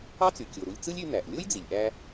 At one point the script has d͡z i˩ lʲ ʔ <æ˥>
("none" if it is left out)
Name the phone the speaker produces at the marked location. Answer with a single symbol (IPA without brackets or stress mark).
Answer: æ˥